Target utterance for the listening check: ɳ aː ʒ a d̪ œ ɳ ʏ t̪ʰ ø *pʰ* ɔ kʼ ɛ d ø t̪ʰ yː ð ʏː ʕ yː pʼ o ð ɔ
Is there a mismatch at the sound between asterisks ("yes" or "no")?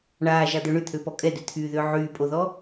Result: yes